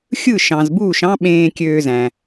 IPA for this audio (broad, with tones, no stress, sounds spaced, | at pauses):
xʲ ɯ˥˩ ʃ ɑ̃˩ z b uː˥˩ ʃ ɑ̃˥ ɓ ẽː˧ kʲ øː˧ z æ̃˩